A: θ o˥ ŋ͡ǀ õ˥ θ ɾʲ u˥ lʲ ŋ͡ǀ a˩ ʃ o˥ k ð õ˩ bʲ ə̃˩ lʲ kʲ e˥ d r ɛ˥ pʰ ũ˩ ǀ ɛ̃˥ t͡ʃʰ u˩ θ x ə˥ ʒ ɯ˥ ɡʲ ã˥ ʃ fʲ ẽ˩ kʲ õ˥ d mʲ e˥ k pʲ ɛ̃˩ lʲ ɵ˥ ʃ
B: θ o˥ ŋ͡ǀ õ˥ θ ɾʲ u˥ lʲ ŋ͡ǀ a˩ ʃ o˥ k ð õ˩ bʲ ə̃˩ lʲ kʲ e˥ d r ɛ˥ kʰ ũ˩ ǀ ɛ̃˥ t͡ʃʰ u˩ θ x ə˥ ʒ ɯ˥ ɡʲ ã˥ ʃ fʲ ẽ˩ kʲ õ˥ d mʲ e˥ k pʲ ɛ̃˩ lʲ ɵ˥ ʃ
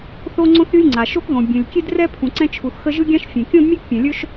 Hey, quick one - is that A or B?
A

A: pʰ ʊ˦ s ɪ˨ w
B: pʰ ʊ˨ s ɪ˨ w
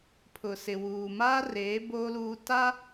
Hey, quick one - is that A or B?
B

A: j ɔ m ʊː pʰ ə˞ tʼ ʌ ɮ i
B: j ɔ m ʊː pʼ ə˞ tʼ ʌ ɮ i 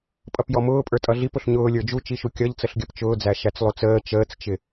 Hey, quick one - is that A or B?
B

